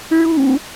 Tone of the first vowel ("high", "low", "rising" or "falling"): low